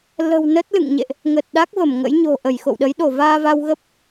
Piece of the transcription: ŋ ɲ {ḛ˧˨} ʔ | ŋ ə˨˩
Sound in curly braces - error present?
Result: no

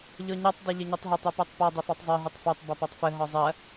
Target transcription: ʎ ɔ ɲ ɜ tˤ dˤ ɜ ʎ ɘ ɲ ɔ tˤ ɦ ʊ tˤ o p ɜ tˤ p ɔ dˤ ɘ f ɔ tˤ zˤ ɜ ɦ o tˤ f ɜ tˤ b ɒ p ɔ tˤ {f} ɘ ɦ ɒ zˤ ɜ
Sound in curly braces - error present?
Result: no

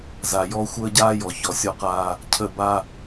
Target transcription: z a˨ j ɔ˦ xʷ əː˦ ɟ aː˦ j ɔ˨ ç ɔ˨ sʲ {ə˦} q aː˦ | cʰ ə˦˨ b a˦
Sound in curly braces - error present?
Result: yes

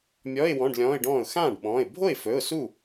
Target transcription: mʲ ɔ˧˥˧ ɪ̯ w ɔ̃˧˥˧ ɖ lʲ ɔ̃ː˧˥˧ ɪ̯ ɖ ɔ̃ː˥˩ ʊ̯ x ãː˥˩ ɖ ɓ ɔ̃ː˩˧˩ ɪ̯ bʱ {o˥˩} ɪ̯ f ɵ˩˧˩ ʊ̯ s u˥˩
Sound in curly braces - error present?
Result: no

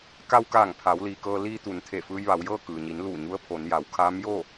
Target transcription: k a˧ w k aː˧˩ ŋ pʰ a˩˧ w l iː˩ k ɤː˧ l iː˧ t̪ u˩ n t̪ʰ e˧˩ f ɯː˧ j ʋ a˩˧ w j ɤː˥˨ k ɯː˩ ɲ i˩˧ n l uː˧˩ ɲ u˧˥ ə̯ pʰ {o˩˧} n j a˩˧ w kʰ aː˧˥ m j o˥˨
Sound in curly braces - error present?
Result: no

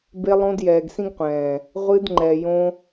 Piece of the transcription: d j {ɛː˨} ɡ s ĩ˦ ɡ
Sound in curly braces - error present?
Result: no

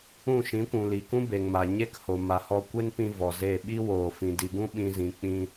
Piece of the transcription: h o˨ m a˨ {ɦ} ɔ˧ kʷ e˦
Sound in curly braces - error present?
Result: yes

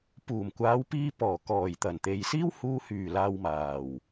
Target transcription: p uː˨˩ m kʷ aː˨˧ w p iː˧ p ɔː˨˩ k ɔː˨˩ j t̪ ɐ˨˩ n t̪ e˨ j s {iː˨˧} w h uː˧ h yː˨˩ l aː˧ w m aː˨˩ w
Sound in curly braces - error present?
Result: yes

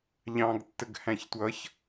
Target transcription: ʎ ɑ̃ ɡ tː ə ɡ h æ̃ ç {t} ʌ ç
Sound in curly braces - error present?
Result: yes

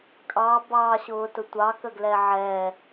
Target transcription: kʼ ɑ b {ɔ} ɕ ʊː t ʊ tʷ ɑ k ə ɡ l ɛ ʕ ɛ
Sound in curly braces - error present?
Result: yes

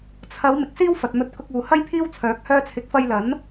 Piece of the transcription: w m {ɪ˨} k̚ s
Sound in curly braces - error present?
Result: no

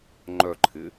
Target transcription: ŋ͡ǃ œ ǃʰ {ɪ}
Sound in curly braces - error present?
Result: no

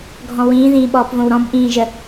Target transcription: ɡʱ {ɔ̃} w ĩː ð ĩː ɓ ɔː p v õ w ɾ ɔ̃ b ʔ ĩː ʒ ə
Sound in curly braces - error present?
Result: no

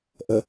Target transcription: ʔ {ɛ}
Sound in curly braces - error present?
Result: yes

